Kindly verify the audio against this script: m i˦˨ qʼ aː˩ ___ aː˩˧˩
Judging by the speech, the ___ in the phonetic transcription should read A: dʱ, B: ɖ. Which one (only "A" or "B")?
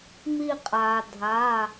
A